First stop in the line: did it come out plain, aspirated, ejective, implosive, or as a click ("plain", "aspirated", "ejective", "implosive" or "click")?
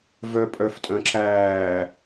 ejective